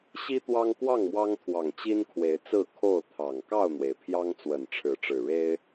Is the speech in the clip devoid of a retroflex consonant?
no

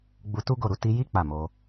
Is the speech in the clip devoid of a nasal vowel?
yes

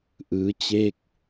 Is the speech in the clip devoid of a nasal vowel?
yes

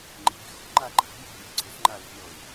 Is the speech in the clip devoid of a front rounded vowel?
yes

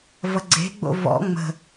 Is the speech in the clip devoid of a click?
no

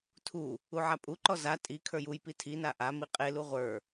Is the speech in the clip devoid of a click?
no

